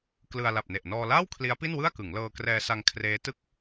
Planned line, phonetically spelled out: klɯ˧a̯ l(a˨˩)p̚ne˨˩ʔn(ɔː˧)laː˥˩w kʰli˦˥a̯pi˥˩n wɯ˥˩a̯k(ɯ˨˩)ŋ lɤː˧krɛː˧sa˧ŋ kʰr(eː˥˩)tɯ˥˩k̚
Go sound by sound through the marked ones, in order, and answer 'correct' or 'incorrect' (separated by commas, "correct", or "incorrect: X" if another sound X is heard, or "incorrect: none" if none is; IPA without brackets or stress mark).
correct, correct, incorrect: ɯ˩˦, incorrect: eː˦˥